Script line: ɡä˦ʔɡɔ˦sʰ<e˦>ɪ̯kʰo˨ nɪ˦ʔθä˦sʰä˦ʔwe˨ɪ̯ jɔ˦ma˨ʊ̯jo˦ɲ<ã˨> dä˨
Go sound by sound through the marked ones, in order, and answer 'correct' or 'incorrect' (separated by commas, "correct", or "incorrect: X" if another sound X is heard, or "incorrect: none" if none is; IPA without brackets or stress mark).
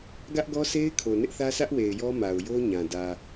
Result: correct, correct